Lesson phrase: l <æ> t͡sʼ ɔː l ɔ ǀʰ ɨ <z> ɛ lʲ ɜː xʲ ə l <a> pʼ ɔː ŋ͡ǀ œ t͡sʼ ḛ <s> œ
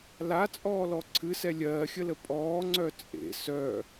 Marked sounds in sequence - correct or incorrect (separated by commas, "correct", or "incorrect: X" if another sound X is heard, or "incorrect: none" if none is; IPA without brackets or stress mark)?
incorrect: a, incorrect: s, incorrect: ə, correct